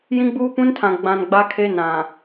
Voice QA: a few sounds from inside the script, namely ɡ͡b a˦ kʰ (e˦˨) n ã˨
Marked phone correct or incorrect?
incorrect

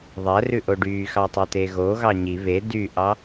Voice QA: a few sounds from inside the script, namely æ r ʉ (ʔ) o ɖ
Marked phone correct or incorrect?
correct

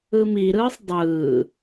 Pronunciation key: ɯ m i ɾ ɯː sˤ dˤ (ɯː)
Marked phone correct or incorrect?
correct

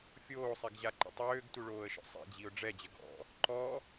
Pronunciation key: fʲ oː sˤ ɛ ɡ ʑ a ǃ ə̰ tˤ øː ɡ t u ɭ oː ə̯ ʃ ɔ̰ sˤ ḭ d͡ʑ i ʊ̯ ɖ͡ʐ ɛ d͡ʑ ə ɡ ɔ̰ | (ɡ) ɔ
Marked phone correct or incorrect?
incorrect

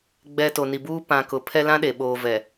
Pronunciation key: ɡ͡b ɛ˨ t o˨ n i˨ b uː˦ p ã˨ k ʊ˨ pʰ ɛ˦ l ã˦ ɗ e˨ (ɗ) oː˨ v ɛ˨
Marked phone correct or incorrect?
incorrect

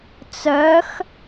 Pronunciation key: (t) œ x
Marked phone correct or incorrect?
incorrect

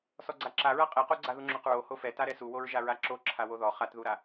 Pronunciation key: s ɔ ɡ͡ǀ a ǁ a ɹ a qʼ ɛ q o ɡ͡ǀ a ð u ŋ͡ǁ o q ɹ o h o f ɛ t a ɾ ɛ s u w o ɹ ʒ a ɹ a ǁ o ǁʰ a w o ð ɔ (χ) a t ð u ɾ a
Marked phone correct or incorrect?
correct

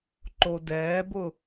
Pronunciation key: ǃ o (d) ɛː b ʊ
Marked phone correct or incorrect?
correct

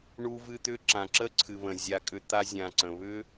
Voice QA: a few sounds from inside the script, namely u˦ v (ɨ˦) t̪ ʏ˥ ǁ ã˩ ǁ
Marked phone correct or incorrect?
correct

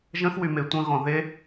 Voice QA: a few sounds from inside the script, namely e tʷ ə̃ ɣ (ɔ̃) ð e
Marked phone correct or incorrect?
correct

